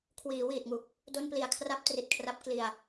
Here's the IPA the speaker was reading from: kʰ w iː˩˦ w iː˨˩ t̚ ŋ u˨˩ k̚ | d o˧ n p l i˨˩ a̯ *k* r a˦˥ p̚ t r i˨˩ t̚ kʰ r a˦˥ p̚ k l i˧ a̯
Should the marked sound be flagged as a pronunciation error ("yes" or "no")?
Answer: yes